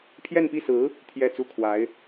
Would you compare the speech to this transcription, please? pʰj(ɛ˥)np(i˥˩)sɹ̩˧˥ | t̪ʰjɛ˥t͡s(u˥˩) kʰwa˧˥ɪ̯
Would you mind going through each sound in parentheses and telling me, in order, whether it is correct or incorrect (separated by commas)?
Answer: incorrect, correct, correct